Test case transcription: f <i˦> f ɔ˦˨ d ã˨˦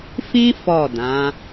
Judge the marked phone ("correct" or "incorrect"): incorrect